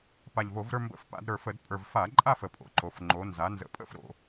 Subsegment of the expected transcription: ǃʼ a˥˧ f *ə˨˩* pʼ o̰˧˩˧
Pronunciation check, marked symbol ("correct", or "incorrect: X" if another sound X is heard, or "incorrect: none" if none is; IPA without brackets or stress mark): correct